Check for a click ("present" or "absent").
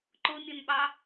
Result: present